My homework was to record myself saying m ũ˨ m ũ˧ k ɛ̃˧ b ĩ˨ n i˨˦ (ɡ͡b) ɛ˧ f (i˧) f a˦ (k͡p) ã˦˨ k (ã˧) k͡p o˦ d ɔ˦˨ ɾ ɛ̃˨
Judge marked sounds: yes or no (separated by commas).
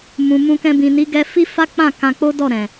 no, no, yes, yes